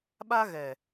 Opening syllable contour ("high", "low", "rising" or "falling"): high